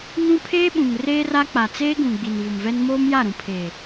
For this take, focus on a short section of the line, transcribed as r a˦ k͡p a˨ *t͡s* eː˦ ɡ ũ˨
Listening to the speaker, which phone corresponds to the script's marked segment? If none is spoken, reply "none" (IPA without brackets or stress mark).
t͡s